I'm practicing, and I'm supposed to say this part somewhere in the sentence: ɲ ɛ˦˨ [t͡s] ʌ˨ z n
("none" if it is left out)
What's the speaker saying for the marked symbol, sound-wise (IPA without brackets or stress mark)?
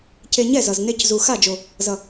z